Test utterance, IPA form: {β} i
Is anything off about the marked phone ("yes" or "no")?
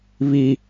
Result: no